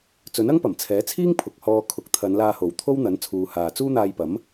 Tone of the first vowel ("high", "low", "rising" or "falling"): rising